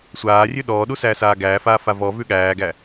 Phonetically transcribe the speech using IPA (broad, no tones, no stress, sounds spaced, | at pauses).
sʷ aː rʲ ʉ ɗ ɔː ɗ u s æː s aː ɡ æː f aː f a v ɔ v ʉ ɠ æː ɡ æ